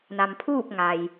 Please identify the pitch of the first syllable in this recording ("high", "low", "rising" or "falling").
low